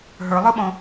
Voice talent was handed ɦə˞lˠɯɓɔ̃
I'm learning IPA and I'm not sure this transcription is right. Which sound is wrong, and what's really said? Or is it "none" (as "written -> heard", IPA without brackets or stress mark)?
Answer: none